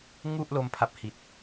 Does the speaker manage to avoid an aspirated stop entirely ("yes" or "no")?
no